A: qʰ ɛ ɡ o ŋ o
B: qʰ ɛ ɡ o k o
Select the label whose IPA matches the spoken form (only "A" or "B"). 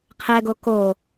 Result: B